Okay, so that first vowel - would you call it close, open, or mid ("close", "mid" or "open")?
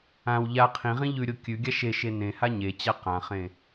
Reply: open